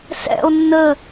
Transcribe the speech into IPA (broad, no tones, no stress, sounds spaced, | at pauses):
s ɛ̰ o̯ nː ə